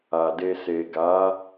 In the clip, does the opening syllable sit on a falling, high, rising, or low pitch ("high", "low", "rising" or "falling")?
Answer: low